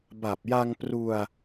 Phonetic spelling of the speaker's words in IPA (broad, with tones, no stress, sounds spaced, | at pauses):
b a˨˩ p̚ j a˧ ŋ p r u˧ a̯